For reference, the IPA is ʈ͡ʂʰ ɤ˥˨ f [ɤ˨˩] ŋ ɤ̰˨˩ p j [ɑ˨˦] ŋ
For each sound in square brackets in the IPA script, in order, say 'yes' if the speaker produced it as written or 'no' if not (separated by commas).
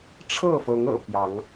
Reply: no, yes